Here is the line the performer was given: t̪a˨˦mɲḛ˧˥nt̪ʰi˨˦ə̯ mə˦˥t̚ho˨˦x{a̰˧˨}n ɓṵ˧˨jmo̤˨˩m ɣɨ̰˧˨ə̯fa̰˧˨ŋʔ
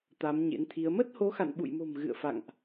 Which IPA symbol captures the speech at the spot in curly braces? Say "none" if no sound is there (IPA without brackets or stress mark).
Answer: a̰˧˨